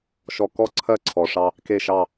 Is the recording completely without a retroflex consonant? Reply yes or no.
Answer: no